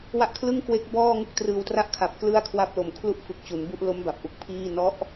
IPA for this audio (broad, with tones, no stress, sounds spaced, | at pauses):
w a˦˥ ʔ kʰ l ɯ˥˩ ŋ k w e˦˥ k̚ b ɔː˥˩ ŋ u˥˩ k̚ t r ɯː˧ w t r a˥˩ ʔ kʰ a˨˩ p̚ k l ɯ˥˩ a̯ kʰ w a˦˥ p̚ l o˨˩ m kʰ l u˥˩ ʔ f ɯ˨˩ k̚ t͡ɕ u˩˦ n b u˦˥ ʔ l o˦˥ m b a˨˩ p̚ ʔ u˨˩ k̚ pʰ iː˥˩ n ɔ˦˥ ʔ